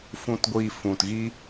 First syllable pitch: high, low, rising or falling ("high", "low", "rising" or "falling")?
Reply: low